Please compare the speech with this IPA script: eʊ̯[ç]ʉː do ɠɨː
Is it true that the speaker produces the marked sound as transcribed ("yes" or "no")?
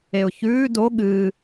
yes